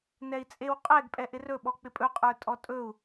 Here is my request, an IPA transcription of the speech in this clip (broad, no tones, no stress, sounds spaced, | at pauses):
n ɛ i̯ t͡sʼ e w qʼ ɛ ɡ pʼ ɛ ʔ ɪ r ɵ ɓ ɔ k͡p ɪ pʼ ɵ qʼ ə˞ tʼ ɔ tʼ ɵ u̯